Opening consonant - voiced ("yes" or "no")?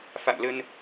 no